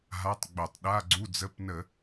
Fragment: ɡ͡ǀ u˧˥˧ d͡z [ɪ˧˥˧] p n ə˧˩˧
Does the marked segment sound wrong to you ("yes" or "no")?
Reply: yes